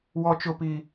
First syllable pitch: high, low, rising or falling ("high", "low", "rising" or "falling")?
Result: high